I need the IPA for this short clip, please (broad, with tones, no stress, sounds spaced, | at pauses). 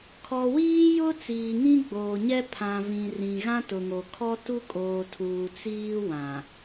kʰ ɔ˨ w iː˦ j ʊ˦ t͡s iː˨ ŋ ĩ˦ ɡ͡b oː˨ ɲ ɛ˦ pʰ ã˨ v ĩ˨ r ĩ˨ ɣ ã˦ t ʊ˨ ŋ o˨ kʰ ɔ˦ t u˦ kʼ oː˨ tʰ uː˨ t͡s iː˦ w ã˨